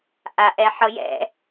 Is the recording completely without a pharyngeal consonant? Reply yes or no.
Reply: no